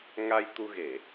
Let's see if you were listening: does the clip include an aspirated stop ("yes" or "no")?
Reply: no